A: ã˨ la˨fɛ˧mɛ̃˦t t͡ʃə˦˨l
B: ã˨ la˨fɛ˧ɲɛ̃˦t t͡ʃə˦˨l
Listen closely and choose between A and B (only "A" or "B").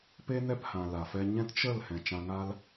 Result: B